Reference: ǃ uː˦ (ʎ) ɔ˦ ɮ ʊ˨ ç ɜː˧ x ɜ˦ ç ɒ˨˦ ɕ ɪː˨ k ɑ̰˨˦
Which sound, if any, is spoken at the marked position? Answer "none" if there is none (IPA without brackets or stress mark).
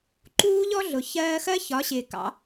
ʎ